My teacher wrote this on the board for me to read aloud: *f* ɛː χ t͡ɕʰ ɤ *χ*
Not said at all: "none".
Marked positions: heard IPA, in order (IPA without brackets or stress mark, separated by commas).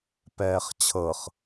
p, χ